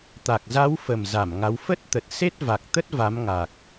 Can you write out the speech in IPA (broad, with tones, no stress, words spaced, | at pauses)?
t̪a˨˩k̚za˨˦wfə˨˩m za˧˩mŋa˨˦w fə˦˥t̚t̪ə˨˩t̚ se˦˥t̚va˨˩k̚t̪ə˦˥t̚ va˨˦m ŋa˨˩k̚